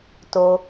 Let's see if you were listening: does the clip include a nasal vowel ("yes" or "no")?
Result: no